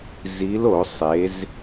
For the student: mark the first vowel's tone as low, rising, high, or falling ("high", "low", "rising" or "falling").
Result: rising